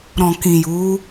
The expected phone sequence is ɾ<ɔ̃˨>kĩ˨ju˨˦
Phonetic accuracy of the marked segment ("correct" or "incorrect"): correct